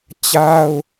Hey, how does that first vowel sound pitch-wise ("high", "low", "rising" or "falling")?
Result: high